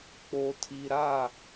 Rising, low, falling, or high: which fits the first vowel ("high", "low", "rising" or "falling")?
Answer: low